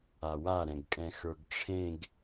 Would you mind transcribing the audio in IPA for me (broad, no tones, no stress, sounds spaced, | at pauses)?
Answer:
a w a ɾ ɛ̃ ɡ kʼ ɛ̃ x ə˞ ɡ ʈ͡ʂʰ ẽ ɡ